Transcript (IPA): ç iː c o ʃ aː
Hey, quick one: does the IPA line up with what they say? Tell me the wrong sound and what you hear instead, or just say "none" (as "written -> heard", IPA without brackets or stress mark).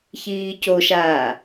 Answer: none